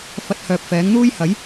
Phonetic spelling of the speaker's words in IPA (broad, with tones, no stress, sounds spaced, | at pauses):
f ɐ˧ t̚ h œː˨ p̚ f ɛː˨˥ ŋ n̪ uː˥ j h ɐ˨˥ j